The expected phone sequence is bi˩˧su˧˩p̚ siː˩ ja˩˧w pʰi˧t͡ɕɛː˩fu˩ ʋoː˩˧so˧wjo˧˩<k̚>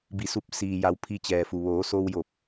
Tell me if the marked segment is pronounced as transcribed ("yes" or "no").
no